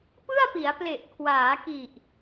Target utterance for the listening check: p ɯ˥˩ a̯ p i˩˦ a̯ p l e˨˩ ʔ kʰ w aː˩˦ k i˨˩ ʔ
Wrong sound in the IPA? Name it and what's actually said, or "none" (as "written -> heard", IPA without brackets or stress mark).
none